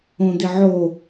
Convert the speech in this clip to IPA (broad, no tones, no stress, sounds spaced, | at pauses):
õ d̪ ɪ ʕ o